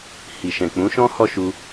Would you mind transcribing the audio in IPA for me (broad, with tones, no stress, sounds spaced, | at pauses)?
h i˨ ʃ ɛ̃˨ k͡p ũ˨˦ ʃ ɔ̃˦ h ɔ˦ ʃ u˧